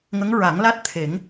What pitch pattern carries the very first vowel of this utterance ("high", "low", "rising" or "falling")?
rising